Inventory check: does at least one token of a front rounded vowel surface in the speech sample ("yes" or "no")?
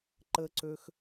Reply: yes